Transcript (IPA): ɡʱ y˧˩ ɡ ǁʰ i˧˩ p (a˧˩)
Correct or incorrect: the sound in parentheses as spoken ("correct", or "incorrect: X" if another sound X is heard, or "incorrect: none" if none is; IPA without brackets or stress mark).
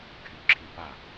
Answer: incorrect: a˥˩